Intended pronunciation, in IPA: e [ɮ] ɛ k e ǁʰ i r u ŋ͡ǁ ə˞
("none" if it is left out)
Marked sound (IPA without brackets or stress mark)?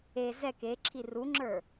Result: z